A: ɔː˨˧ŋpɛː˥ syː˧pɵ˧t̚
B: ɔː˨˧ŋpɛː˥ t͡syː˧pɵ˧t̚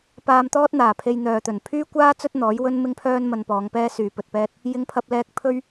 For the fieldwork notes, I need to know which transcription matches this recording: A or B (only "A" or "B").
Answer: A